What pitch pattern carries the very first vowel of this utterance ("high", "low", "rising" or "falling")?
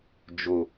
low